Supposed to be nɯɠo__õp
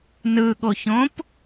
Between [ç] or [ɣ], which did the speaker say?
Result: ç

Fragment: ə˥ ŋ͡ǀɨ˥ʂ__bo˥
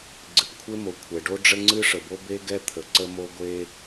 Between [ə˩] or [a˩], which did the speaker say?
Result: ə˩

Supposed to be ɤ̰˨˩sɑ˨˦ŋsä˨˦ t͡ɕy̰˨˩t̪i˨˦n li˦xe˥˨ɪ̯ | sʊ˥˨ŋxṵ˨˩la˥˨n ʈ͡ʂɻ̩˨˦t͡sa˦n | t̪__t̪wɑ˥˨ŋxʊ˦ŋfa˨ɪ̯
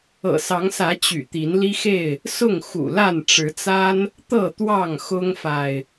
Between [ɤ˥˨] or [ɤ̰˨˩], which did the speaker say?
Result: ɤ˥˨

